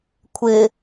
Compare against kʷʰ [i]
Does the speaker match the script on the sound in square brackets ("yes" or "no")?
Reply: no